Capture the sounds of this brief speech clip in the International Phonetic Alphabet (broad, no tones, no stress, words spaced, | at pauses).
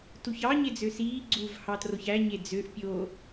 tuçɑ ɲed͡zøsiː ɡ͡ǀuv hɑtroçæ ɲed͡zøʔ pʲo